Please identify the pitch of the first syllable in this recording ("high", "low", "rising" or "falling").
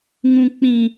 high